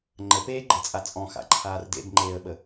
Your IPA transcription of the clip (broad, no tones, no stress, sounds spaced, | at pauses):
ŋ͡ǃ ə p eː ɡ͡ǃ e t͡sʼ a t͡sʼ ɔ̃ x a̰ ǃʰ aː r d ḛ b ŋ͡ǃ eː ə̯ ɓ ə